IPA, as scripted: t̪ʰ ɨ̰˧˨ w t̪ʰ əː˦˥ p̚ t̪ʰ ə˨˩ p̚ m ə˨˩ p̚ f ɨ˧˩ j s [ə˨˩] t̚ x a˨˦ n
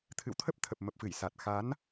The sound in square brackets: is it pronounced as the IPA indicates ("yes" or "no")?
no